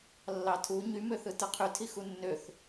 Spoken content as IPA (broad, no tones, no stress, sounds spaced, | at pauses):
lː ɑ tʰ u ɲ y m ø θ ɯ t ɯ qʰ y tʰ i x u nː ø θ